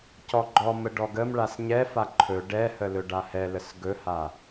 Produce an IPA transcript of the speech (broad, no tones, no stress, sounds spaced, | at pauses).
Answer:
c ɔ ɡ͡ǃ ɔ m ə ɖ ɔ ɡ ə m ɭ a s ɲ ɛ f a ǃʰ ɵ ɖ ɛ h ə l ɵ ɖ a h ɛ l ə s ɡ ɵ h a